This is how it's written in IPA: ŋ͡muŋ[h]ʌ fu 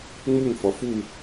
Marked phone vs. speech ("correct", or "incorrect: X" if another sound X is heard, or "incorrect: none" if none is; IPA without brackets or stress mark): incorrect: f